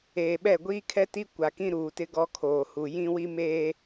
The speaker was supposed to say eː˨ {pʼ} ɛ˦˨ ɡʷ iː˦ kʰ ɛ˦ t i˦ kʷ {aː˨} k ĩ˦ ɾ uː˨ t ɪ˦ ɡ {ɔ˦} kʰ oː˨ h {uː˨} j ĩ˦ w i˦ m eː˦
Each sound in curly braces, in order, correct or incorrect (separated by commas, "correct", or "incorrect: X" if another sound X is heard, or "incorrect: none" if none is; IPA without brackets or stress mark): incorrect: ɓ, incorrect: a˨, correct, incorrect: u˨